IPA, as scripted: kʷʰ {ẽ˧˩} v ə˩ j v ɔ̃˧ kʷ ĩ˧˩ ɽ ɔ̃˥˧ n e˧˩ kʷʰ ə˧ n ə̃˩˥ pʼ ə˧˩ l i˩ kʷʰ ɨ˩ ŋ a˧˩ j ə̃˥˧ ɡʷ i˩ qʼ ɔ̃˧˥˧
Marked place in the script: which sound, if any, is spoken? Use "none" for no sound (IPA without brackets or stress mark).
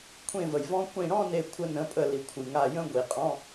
ẽ˧˩